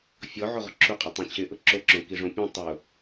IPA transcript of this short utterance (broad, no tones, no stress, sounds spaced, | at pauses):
fʲ ɔ ʕ o ʁ ʊ ǁʰ u qʼ a tˤ ẽ t͡ɕʰ ɪ ʔ ʊ ǁ o ǁ õ k i ʐ õ pʲ õ tˤ ʊ